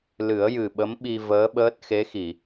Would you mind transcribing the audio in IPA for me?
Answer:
l ɨ˨˩˦ ə̯ j ɨ˨˩ ɓ ə˧˥ m ɓ i˧ v əː˧˥ ɓ əː˦˥ t̚ x e˧˥ x i˨˩˨

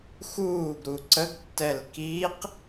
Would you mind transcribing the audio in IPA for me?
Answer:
x uː ɡ ɾ u ǀ ə ɡ tː ɛ l k i q

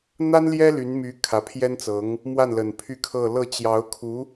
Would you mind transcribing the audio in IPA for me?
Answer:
n̪ a˥ n l j ɛ˥ l y˧˥ n m y˧˥ kʰ ä˧˥ pʰ j ɛ˥ n t͡s ɤ˧˥ ŋ | m w a˥˩ n l ə˨˩ n pʰ y˥˧ kʰ ɤ˥˧ l ɤ˥˩ t͡ɕ j ɑ˧˥ ʊ̯ kʰ u˧˥

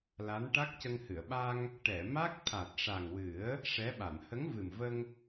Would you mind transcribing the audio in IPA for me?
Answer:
l a˧˥ n ʈ a˦˥ k̚ c ə˧ ŋ h ɨ˨˩˨ ə̯ ɓ a˧ ŋ | ʈ ɛ˨˩˨ m a˦˥ k̚ t̪ʰ a˨˩ t̚ ʂ a˨˩ ŋ w ɨ˨˩˦ ə̯ | ʂ ɛ˧˥ ɓ a˨˩˨ n h ə˧˥ ŋ v ɨ˨˩ m v ə˧ ŋ

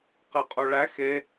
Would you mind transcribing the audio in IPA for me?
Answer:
q ɛ qʼ o ɭ æ x e

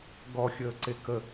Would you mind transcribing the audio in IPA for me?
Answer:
ɡ ɔ xʲ əː ǀ e k ə

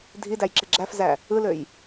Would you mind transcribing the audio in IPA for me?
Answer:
dʱ i d æ j ǁ e ɡ͡ǁ æ f z æ | ɯ l ø j

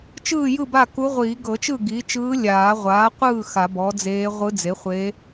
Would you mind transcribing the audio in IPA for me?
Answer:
t͡ʃ ɯː˥˨ j ɯ˥˨ b a˥˨ k u˧˥ ʁʷ iː˨˩˦ ɡ ɤ˨˩˦ t͡ʃ ɯ˥˨ ɡ iː˩˥ t͡ʃ ɯː˧˥ lʲ aː˨˩˦ ʁʷ aː˩˥ qʷ ɯː˥˨ x a˨˩˦ b ɔ˩˥ d͡z eː˧˥ ʁʷ ɯ˧˥ d͡z e˩˥ χʷ eː˧˥

